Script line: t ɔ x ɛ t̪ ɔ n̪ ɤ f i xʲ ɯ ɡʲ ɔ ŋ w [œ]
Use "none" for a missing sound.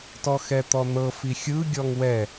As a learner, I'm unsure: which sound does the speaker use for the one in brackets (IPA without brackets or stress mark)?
ɛ